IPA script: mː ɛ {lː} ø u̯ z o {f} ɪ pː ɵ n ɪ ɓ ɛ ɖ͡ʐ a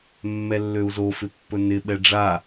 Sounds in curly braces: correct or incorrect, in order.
correct, correct

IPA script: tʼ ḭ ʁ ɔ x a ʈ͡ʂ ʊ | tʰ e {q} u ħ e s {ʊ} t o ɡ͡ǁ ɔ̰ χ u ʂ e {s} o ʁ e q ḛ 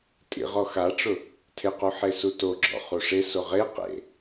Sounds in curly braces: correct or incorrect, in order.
correct, incorrect, correct

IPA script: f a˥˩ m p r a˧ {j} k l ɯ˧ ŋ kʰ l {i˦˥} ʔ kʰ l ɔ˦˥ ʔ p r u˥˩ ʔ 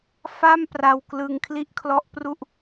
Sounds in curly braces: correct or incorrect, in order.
incorrect, correct

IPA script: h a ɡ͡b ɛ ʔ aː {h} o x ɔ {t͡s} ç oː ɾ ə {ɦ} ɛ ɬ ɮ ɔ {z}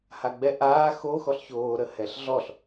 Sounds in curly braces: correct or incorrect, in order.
incorrect, incorrect, incorrect, incorrect

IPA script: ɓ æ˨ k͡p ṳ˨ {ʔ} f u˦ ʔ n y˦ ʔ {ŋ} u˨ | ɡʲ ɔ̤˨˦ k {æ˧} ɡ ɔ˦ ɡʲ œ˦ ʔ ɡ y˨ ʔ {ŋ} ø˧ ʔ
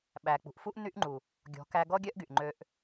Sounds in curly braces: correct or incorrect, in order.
correct, incorrect, correct, incorrect

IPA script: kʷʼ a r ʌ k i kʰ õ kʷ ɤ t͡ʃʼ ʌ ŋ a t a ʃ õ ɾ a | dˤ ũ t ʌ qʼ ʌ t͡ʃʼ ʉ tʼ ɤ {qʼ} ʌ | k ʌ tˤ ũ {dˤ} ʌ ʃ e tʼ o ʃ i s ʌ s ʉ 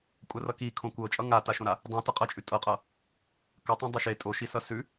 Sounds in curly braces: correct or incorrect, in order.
correct, correct

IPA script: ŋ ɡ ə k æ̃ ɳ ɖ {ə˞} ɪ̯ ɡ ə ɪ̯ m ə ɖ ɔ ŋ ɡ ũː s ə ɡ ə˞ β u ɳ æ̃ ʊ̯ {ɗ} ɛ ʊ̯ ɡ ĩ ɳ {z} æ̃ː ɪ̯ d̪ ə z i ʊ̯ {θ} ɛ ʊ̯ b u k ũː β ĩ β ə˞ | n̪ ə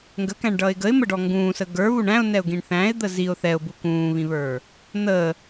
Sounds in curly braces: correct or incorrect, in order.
incorrect, incorrect, incorrect, correct

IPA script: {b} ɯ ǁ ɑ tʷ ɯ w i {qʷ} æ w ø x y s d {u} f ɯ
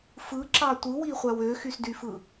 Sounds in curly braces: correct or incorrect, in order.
incorrect, incorrect, incorrect

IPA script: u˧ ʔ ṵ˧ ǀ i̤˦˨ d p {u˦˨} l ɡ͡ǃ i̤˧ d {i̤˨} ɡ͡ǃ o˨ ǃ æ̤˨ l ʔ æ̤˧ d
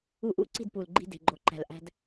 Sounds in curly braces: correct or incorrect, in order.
incorrect, incorrect

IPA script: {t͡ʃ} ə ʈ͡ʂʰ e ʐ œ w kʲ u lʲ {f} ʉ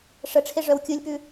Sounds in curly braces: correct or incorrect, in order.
incorrect, incorrect

